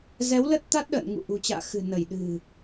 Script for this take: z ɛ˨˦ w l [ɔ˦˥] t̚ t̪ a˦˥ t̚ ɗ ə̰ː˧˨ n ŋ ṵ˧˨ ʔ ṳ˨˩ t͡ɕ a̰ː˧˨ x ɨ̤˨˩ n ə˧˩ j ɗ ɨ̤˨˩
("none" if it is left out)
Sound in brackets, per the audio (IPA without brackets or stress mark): ə˦˥